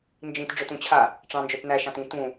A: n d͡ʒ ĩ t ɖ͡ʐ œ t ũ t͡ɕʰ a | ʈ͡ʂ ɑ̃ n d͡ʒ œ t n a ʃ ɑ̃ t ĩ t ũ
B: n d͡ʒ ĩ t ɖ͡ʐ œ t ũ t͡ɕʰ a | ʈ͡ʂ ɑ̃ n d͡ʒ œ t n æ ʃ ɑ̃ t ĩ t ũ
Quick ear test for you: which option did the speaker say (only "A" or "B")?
B